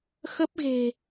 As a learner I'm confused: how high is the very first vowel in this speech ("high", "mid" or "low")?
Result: mid